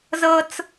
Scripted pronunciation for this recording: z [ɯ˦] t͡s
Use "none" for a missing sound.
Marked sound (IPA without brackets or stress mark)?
ɤ˦